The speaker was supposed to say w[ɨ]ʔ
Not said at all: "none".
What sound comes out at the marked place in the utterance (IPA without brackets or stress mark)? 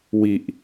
i